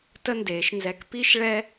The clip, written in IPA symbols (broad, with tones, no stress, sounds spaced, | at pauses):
t ə˦ n d eː˨˦ ʃ n z ɛ˧ k p i˦ ʃ ɭ ɛ˦